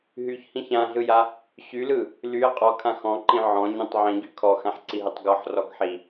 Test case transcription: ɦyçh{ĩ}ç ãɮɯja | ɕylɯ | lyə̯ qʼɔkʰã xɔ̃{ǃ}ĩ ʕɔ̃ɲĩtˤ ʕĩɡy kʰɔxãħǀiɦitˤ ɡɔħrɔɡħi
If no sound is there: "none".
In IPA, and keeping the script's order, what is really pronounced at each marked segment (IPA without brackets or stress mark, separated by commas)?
ĩ, ǃ